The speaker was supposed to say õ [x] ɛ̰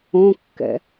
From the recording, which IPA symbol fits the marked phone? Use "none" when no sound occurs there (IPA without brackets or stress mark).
kː